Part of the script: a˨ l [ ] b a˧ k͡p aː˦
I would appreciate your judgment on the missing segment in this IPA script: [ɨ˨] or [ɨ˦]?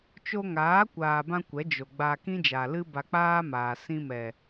ɨ˦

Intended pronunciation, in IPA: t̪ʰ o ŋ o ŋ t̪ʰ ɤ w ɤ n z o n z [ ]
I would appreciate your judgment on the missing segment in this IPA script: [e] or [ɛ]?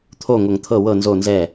ɛ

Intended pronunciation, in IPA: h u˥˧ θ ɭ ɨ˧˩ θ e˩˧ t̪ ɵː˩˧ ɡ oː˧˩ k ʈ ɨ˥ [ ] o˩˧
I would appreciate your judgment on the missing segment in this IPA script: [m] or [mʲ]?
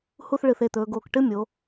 mʲ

